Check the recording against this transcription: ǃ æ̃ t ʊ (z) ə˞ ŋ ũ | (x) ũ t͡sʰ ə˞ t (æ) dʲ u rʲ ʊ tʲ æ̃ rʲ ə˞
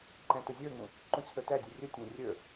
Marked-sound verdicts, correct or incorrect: incorrect, incorrect, correct

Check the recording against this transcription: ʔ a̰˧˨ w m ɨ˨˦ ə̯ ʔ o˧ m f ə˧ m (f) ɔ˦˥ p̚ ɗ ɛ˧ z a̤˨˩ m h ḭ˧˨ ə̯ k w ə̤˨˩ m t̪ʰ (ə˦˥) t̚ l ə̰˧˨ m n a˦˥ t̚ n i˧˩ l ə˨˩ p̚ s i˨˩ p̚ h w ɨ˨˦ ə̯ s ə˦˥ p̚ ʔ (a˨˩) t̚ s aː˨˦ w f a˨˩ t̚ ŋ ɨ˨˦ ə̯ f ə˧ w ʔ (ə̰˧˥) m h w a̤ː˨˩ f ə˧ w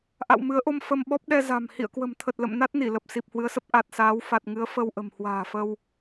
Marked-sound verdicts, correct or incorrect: incorrect, incorrect, correct, incorrect

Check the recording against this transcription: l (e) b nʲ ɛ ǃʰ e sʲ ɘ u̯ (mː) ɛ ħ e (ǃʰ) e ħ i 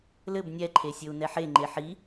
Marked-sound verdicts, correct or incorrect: incorrect, incorrect, incorrect

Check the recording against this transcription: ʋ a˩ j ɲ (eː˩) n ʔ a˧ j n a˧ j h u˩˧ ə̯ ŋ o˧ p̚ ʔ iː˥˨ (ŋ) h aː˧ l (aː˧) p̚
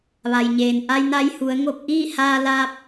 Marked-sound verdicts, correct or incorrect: correct, incorrect, correct

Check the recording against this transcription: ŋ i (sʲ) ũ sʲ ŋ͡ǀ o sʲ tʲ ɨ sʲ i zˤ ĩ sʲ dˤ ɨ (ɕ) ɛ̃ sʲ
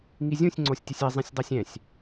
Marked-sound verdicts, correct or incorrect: incorrect, incorrect

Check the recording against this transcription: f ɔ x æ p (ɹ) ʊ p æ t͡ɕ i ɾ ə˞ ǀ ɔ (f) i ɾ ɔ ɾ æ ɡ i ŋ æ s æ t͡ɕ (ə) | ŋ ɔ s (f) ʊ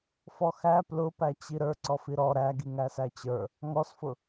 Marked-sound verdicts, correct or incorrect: incorrect, correct, incorrect, correct

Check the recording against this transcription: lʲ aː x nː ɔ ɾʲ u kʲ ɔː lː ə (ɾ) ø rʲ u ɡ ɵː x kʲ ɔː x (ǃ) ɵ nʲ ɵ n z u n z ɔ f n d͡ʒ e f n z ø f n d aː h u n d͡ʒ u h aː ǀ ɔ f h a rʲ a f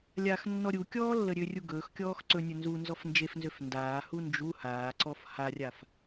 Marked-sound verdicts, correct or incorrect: incorrect, incorrect

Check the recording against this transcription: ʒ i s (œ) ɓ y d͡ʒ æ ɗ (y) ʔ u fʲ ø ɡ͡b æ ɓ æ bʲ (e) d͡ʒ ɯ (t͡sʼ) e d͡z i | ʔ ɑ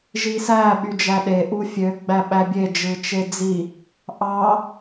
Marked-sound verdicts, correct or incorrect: incorrect, incorrect, correct, incorrect

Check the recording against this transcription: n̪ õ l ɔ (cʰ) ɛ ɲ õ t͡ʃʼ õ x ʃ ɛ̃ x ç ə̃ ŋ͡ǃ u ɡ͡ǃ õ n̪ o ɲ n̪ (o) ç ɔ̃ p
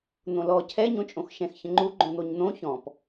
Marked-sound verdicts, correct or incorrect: correct, incorrect

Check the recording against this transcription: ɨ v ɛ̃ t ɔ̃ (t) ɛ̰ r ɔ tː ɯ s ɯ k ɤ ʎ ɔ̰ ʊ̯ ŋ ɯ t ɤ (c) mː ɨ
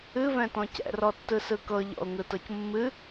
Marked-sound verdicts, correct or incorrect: incorrect, correct

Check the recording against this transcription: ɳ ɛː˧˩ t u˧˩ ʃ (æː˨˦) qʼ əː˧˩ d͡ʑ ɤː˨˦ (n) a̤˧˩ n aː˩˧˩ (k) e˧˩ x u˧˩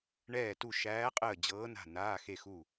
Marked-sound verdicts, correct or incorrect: correct, correct, incorrect

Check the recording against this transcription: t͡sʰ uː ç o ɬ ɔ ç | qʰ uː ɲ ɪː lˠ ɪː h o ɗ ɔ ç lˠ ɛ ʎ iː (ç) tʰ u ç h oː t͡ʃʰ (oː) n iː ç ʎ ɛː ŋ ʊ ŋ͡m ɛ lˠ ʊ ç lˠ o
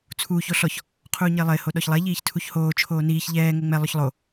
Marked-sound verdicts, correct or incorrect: correct, correct

